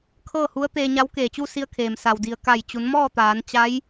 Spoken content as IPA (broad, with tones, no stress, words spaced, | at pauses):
kʰɤː˥˨hu˧˥ə̯t̪eː˧ɲa˧˥w keː˧˩t͡ɕu˥˨si˧ə̯kʰeː˩m sa˩wdi˩ə̯ ka˧˩j t͡ɕu˩˧nmɔː˥˨t̪aː˩˧n t͡ɕa˧˥j